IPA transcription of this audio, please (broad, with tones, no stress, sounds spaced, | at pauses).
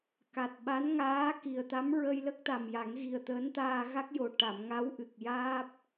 k a˨˩ t̚ ɓ a˧˥ n ŋ aː˧˥ k i˨˩ ə̯ t̪ a˧˥ m ɹ ə˧ j l ə˦˥ k̚ t̪ a˨˩ m j a˨˩˦ ŋ ɣ i˨˩ ə̯ t̪ əː˧˥ n t̪ aː˧ ɣ a˦˥ k̚ j o˨˩ ʈ a˨˩˨ m ŋ a˧˥ w ʔ ɨ˨˩ k̚ j aː˦˥ p̚